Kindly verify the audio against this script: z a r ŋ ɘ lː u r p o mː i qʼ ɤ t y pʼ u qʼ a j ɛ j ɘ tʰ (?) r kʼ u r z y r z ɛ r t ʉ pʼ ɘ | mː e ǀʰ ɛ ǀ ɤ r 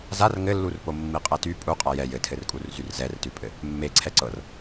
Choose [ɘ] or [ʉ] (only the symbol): ɘ